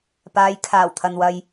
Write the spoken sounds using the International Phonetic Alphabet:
paː˨˧jkʰaː˨˩wt̪ʰɐ˨n wɐ˨j

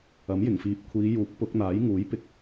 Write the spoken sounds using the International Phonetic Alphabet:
ɐ˨˥mjɪ˨˩ŋfiː˨p̚ kʷʰiː˨˧juː˨˥k̚ pʊ˨˥k̚n̪aː˨˥j ŋuː˨˥jpɪ˧k̚

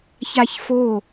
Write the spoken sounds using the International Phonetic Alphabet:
çaçfo

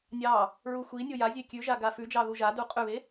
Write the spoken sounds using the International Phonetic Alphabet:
nʲɑ | ɹuxʷinʲo jazʲe kʲʉʒa ɡafʉd͡ʒɑ ðuʒadu qʼʉβe

